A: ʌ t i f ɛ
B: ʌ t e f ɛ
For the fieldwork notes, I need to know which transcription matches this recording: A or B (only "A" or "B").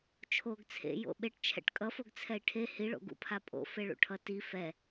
A